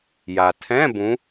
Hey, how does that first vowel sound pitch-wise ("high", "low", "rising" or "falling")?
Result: low